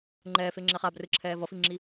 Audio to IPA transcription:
ŋ͡ǃɛːfeŋ͡ǁɛːχ abrɯǁʰɛː vʌfiŋ͡ǁi

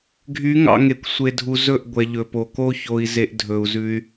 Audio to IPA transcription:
ɡʱy˨˦ ŋɑ̰˧ ŋe˨kʷ sʷe˨dʱu˨ zɵ˦˨ʔ ɡʷɛ˨ʎɵ˨po˨ ko˧ço˨i̯ ze˦ʔ dʱɵ˧u̯zʉ˦y̯

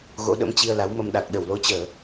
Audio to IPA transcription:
ɣo̰˧˥ɗə̰˧˥mt͡ɕi˧ə̯ la˨˦wmə˧m ɗa˨˩k̚ɗə˧˩wlo˨˦t͡ɕəː˧˩˨

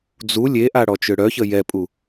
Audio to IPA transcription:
d͡zu lʲeʔa ɽɔt͡ʃøɽœçə jɛpʼu

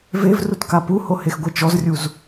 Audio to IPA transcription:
vevrutka puhohexɡʷe t͡ʃɔzrʲuz

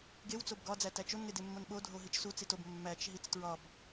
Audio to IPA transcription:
ɡew t͡sobɡɒ d͡zætæt͡ʃon ŋedemːonɓo dʱoɦit͡ʃsu t͡sitob mːæt͡ʃ ɦit͡stɹɒb

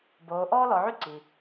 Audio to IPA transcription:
boː˩˧ʔɔː˥lɔ˩˧ʕy˥ ǀi˩

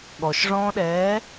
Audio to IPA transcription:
ɠɔʃʐɔ̃ːɗɛː

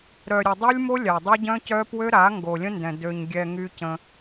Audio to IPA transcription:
ɾœ˨ɾʲə˨ dˤu˦lʲmo˦lʲa˨ dˤø˦ɟœ̃˦cœ˦ pwø˦ɾa˨˦ ŋɡo˨lʲə̃˦ndɛ̃˨ dø˨ɲɡʲɛ˨ ŋy˦cə̃˦

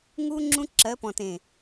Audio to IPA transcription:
ŋu˦ ŋ͡ǁũ˦ǁɜ˨˦pɔ̃˨tẽ˨

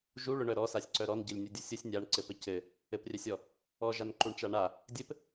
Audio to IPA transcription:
ʒu ɭʊɳœ ɾɔsasʲǀœ ɾɔnɟɘlʲnʲudʲʊ sʲʊsʲ nʲaɳǀɘpɘ cɘ | ɘprʲœsʲɔ | ɔʒanǃuɳt͡ʃa ɳa | dʲɘp

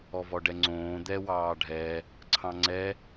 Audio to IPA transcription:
ɔvɔɖɛŋ͡ǀõː d̪ɛ wɑːɖʱɛ | ǀʰɑ̃ŋ͡ǀɛ

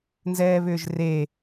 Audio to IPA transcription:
nzɛːβʏːʒre

